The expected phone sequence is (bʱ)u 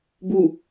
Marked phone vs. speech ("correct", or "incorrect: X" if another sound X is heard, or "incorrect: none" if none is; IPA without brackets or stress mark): incorrect: b